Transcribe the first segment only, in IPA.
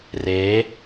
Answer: r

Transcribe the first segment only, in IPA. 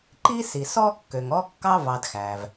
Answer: ǃ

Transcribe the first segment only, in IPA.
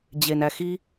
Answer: d͡ʑ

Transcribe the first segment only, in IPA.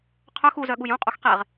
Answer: qʰ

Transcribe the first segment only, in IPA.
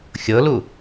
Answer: xʲ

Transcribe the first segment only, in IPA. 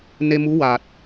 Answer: n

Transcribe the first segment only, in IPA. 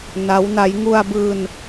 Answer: n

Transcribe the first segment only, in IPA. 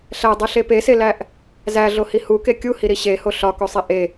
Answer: ɬ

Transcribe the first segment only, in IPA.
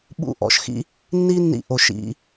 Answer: ɓ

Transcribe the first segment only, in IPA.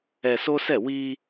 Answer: ɛ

